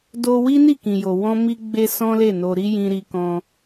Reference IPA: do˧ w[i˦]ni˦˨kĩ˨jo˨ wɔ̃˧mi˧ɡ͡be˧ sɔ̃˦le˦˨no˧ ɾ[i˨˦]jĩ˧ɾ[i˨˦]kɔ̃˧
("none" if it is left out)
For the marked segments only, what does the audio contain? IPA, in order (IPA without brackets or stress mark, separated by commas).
i˦, i˦, i˧